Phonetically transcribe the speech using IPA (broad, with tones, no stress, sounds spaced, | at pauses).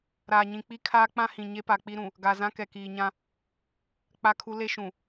ɾ aː˨ ɲ ĩ˨ k͡p i˦ kʰ aː˦ k͡p ã˦ h ĩ˨ ɲ e˦ p a˨ k͡p i˦ ɾ ũ˨ | ɡ a˨ z ã˦ k ɛ˨ k iː˨ ɲ ã˦ | k͡p a˦ kʰ u˦ l e˦ ʃ ũ˨